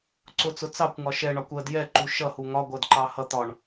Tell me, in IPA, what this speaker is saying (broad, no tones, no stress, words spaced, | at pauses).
ǀʊt͡sʊ t͡sɑkʷŋɒ ʃɛɳɒkʷ ɜd jɛǃu ʃʌhu ŋɒɡʷɜdǃɑ hʌ t̪ɒɳ